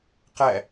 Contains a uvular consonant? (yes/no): yes